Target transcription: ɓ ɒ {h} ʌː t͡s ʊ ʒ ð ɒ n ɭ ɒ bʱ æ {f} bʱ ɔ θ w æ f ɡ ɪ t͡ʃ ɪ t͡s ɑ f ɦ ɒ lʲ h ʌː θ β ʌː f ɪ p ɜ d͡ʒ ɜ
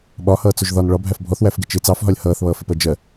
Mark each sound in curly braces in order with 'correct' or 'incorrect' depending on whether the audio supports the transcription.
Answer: correct, correct

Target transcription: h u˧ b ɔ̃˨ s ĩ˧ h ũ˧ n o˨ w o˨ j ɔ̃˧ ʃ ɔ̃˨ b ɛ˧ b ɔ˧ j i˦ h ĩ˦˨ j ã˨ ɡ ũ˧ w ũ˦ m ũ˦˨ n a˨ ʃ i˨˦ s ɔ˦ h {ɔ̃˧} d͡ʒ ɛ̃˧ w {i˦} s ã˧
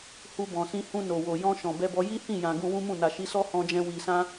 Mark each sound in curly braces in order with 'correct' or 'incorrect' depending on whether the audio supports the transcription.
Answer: correct, incorrect: i˨

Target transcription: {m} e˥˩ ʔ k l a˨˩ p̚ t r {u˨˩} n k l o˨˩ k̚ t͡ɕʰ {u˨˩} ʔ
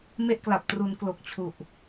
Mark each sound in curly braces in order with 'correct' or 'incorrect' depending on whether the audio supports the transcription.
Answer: correct, incorrect: u˩˦, correct

